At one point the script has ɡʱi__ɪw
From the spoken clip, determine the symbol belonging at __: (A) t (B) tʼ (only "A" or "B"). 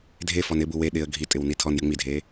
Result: B